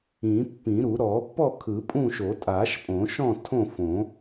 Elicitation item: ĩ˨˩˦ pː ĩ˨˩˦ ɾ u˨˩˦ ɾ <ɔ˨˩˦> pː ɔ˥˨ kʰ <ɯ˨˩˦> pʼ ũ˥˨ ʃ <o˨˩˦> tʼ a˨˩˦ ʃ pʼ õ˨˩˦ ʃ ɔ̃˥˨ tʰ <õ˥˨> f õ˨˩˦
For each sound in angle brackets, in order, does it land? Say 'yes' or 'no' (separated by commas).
yes, yes, yes, yes